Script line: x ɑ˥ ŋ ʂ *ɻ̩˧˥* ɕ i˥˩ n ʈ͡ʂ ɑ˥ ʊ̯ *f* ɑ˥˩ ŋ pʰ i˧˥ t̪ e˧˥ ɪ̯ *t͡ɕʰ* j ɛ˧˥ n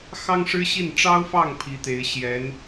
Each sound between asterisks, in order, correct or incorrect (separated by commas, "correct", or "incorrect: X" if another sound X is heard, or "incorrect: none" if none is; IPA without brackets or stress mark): incorrect: ɻ̩˥, correct, incorrect: ɕ